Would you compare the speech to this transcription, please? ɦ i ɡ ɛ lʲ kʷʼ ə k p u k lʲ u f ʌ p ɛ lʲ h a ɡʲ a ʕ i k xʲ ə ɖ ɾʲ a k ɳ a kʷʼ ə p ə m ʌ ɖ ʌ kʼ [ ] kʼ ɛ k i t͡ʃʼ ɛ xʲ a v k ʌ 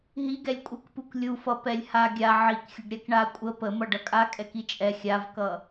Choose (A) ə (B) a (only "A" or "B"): B